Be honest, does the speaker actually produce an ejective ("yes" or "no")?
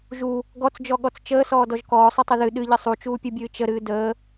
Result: no